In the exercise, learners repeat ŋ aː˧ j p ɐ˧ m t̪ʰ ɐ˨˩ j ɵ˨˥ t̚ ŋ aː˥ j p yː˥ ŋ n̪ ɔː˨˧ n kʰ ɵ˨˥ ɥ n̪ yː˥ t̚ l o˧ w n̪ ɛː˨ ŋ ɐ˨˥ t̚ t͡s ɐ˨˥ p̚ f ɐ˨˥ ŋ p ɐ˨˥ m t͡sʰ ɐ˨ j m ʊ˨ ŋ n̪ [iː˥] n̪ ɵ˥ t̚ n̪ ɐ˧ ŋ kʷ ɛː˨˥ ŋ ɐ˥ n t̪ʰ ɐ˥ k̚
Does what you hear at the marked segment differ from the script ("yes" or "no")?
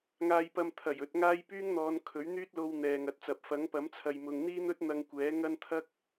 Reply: no